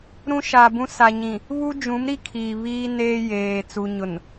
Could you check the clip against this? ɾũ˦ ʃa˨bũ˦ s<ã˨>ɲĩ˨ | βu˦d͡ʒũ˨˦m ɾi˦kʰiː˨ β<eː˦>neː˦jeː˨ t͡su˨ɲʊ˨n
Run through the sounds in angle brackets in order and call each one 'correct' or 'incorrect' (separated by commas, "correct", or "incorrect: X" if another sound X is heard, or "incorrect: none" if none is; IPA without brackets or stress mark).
incorrect: a˨, incorrect: iː˦